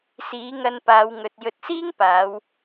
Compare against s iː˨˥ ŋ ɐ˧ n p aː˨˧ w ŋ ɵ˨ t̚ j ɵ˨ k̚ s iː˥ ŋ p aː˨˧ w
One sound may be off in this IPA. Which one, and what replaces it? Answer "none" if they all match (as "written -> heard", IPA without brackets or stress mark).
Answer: k̚ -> t̚